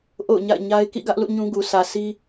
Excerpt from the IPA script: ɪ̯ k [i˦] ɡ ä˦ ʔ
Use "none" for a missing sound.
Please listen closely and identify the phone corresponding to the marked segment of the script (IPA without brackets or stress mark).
ḭ˦˨